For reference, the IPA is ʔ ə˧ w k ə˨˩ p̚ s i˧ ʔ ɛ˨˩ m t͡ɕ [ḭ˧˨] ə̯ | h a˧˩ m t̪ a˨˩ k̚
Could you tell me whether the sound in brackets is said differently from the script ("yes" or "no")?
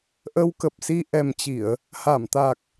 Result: yes